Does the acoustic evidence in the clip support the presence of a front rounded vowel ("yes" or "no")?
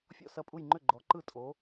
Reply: yes